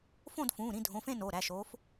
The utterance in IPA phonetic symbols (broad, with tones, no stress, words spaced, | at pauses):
fõ˦˨d fũː˩˧˩ɾĩ˦˨dʱõ˩˧˩fẽ˦˨ no˩˧˩ɾæ˩˧˩ʃoː˨˦f